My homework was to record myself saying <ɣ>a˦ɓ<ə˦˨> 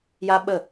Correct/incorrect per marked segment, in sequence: incorrect: j, correct

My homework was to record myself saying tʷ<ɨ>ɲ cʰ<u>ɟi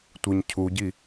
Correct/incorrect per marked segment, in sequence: correct, correct

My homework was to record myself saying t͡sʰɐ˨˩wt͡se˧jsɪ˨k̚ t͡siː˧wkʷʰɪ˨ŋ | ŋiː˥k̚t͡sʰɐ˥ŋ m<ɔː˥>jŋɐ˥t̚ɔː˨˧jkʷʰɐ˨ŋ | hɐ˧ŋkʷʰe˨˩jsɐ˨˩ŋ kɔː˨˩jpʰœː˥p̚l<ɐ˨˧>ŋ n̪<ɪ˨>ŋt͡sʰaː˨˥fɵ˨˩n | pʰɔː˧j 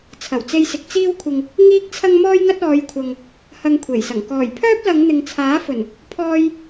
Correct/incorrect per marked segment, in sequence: correct, correct, correct

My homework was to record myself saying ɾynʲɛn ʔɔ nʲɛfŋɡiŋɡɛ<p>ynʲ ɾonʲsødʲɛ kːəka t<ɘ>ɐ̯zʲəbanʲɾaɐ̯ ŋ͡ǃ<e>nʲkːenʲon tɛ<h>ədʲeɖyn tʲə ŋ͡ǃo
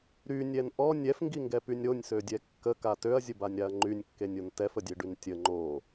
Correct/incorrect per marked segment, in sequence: correct, incorrect: ø, incorrect: y, incorrect: f

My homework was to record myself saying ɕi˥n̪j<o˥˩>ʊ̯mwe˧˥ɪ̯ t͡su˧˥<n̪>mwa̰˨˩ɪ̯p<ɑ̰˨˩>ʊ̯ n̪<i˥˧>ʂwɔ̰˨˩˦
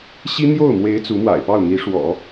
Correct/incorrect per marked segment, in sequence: correct, incorrect: none, incorrect: ɑ˥˩, incorrect: i˧˥

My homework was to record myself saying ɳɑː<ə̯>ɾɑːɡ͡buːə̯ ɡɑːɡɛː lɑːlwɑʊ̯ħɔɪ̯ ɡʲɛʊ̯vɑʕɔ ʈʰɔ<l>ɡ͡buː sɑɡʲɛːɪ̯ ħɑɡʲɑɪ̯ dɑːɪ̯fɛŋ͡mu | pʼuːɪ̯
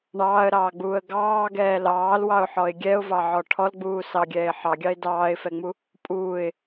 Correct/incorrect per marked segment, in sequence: correct, correct

